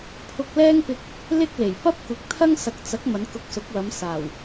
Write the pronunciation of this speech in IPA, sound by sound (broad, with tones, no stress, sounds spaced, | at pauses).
pʰ ʊ˧ k̚ l ɛː˥ ŋ p ɪ˧ k̚ | l ɪ˥ k̚ l e˨˩ j p ɐ˥ p̚ kʷ ɪ˨ k̚ t̪ʰ ɐ˥ ŋ s ɐ˨ k̚ t͡s ɐ˨˥ k̚ m ɐ˨˧ n k ʊ˧ k̚ s ʊ˨˥ k̚ w ɐ˨˧ m s aː˨˩ w